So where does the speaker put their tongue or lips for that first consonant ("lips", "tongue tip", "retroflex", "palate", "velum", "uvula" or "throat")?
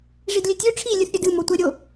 retroflex